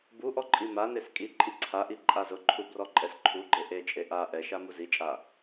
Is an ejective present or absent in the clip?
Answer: present